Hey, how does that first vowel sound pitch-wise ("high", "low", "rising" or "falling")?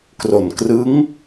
low